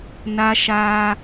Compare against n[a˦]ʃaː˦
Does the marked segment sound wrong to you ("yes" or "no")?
no